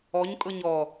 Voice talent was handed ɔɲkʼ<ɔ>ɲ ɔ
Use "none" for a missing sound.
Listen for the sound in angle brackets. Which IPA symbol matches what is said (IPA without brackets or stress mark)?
ɤ